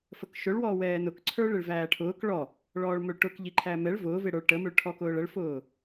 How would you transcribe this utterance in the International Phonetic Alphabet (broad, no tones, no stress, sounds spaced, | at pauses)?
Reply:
f ə k ʃ ʊ ɭ w ɔː w ɛː n ʊ k ǀʰ ə˞ ɭ ɪ ɭ v æː ʈʰ ʊː k ɭ ɔ | ɭ ɔː ɭ m ʊ ɭ ʈ ʊ k ʎ i ǃʰ æ m ɛ ɭ v ʊː v ɪ ɽ ə˞ ɭ ʈ ə m ʊ ɭ ʈʰ ɔ k ʊː ɭ ə ɭ f ʊː